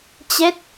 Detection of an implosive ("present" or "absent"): absent